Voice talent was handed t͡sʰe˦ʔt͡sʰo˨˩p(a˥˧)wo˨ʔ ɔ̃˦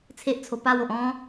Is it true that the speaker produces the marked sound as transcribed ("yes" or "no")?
yes